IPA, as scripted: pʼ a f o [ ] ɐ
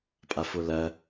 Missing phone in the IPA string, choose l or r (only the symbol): l